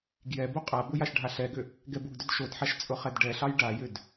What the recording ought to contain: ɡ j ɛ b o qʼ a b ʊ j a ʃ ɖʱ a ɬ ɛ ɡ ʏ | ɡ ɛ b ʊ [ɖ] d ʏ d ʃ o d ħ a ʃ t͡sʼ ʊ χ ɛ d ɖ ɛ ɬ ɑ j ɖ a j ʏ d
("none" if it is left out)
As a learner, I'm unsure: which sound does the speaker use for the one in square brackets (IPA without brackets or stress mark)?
ɡ